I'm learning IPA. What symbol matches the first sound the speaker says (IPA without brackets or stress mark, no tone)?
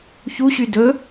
ç